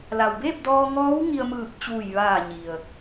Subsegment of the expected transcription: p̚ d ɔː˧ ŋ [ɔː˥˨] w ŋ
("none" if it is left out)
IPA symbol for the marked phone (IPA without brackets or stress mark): ɔː˧˥